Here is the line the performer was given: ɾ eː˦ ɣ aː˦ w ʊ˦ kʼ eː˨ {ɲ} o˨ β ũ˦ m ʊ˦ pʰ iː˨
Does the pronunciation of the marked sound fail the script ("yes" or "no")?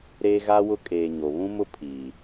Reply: no